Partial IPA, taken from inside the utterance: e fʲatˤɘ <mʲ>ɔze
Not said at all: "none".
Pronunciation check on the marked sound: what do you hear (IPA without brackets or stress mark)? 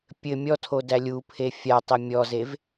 mʲ